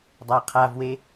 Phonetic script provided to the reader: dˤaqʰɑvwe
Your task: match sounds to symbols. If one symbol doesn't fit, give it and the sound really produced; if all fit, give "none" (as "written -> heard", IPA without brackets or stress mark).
ɑ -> a